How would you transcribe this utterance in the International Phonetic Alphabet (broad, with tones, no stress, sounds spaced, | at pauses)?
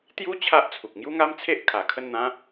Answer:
t̪ j u˦ t͡ɕʰ a˦ ʔ t͡sʰ u˨ k̚ ŋ j u˦ ŋ a˦ m t͡sʰ e˦ ʔ kʰ a˨˩ kʰ ə˥˧ n n̪ ã˦